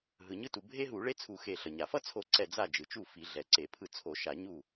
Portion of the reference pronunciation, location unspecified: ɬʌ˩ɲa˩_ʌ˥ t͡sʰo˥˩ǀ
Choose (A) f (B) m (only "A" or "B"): A